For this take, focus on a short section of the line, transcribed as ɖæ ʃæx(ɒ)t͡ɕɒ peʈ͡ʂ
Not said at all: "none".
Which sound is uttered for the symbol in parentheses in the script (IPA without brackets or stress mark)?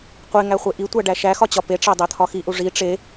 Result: ɒ